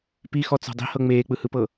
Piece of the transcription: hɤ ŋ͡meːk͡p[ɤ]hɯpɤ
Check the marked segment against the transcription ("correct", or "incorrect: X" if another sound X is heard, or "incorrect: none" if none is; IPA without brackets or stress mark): incorrect: ɯ